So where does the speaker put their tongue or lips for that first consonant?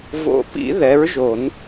lips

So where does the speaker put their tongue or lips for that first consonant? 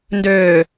tongue tip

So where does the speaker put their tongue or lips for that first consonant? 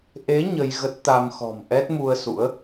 throat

